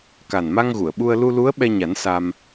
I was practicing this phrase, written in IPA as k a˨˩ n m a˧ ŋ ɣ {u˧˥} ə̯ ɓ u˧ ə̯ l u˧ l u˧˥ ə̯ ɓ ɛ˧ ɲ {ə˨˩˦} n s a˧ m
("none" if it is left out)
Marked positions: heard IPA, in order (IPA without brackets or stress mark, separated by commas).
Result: u˨˩˨, a˨˩˦